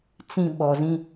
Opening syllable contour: low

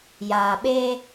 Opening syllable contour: low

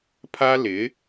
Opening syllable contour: high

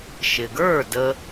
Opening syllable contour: low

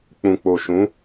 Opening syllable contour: low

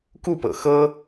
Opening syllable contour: falling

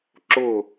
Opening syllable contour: falling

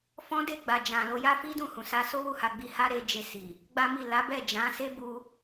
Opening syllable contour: high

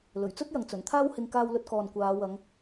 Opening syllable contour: low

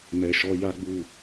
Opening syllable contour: low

